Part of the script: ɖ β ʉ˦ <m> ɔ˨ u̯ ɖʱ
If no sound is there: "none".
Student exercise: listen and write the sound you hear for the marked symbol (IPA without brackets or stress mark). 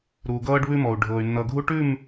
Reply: m